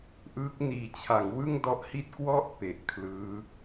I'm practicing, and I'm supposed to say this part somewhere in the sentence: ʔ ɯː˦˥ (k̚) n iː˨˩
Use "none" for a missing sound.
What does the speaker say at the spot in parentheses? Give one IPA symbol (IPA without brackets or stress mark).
k̚